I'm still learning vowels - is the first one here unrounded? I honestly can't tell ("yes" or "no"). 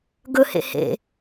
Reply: no